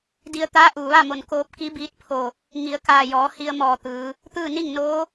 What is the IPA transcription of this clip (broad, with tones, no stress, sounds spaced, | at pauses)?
d i˧ ə̯ t̪ aː˧˥ ʔ uː˩ ʋ a˥˨ m o˧˩ n k oː˧ p̚ k i˧˥ b iː˧˥ t̚ pʰ o˧˩ | ŋ i˩˧ ə̯ k aː˧˩ j ɔː˩˧ h i˧ ə̯ m ɔː˧˩ t̪ ɯː˩˧ | t̪ ɯː˥˨ n i˥˨ ŋ n oː˧˥